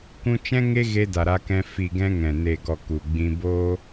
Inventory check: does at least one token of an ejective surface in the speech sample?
no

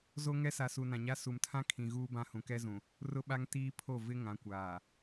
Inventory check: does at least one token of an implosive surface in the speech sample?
yes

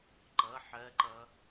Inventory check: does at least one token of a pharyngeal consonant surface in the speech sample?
yes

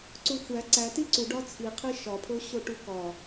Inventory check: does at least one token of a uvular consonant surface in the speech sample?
yes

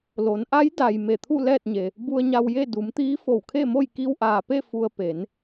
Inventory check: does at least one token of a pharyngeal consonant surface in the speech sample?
no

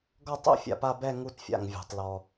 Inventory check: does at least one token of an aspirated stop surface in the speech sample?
no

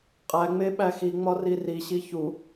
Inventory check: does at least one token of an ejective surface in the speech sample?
yes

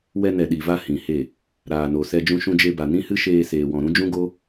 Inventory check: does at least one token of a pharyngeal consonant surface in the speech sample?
no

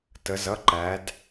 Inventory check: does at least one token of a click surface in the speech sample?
yes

